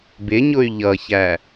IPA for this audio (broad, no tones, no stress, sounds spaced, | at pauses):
b ɪ ɲ ʊ y̯ ʎ ʌ ç æ